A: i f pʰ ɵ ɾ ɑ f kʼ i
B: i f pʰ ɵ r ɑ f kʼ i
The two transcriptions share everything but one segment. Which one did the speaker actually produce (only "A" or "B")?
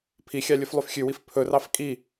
B